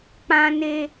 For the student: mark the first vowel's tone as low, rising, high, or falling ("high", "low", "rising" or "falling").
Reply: high